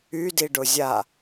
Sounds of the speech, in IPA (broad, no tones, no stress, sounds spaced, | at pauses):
y d i ɖ ʊ zʲ a